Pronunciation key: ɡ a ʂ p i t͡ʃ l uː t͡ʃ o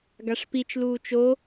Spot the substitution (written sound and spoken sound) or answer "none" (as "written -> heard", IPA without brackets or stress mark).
none